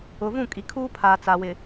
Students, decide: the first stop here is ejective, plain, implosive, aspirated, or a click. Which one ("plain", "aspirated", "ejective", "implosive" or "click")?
ejective